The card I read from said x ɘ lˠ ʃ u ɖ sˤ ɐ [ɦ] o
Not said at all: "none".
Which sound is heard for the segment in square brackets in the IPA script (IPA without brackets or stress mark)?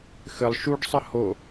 h